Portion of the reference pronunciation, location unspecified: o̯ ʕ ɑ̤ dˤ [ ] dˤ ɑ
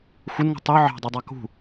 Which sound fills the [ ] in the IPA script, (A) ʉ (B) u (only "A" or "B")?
B